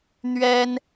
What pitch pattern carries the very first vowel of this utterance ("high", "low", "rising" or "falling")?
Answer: high